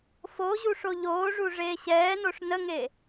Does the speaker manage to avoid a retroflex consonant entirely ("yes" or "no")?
no